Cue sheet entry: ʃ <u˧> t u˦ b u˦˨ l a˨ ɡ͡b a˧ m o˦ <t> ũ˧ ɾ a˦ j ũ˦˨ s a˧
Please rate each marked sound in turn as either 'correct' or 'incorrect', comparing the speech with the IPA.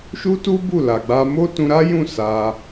incorrect, correct

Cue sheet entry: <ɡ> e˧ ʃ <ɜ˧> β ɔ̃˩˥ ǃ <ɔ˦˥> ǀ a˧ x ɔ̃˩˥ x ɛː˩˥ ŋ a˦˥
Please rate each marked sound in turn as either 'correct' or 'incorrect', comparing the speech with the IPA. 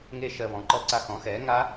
incorrect, correct, correct

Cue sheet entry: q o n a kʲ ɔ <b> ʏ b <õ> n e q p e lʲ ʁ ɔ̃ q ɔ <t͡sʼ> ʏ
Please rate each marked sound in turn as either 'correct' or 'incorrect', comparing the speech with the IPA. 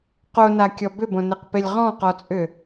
correct, correct, correct

